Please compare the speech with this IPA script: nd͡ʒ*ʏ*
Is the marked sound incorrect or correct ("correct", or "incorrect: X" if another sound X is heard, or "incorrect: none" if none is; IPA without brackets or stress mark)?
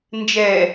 incorrect: ɛ